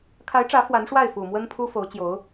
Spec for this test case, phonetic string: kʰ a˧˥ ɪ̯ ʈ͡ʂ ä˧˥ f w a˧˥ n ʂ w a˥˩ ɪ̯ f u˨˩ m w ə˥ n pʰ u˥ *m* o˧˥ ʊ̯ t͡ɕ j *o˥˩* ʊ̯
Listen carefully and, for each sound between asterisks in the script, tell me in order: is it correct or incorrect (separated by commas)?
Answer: incorrect, incorrect